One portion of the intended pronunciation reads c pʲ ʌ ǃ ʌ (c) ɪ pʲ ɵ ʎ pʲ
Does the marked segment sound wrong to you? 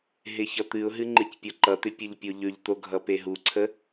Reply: yes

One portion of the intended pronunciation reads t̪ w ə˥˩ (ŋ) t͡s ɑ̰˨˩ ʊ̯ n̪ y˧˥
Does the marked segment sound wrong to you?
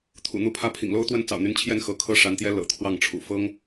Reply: yes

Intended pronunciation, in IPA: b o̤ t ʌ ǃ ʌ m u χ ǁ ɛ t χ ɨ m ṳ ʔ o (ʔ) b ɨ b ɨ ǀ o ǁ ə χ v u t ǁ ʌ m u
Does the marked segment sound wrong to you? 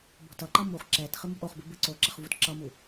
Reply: yes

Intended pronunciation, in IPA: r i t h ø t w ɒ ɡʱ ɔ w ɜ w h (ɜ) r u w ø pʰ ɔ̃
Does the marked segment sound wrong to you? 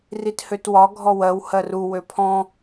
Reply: no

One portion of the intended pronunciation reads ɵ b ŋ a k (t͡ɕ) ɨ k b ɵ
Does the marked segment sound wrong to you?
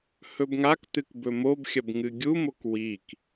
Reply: yes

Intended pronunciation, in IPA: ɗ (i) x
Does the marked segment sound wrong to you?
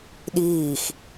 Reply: yes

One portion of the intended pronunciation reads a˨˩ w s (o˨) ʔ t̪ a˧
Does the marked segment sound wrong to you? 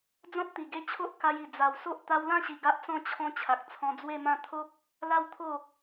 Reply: yes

